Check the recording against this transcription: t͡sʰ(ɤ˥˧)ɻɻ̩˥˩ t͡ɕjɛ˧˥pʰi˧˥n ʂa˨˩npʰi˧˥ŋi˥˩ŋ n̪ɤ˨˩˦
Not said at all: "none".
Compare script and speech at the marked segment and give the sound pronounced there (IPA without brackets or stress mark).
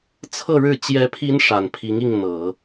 ɤ˥˧